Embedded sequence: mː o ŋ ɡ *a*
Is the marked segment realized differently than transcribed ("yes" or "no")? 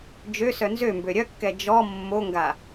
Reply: no